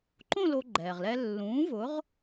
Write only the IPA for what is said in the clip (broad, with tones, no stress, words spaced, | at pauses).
ǃõ˥˧ lo˧ɡ͡ǃɛː˩ʁlɛ˧ lːũː˨˥ vʊ˨˥ʁ